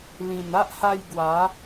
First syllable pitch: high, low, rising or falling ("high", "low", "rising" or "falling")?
low